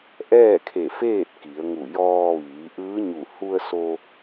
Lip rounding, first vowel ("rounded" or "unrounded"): unrounded